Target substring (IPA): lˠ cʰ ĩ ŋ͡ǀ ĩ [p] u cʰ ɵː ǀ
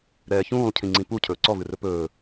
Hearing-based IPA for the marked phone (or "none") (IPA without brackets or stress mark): p